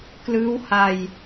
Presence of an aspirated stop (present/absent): absent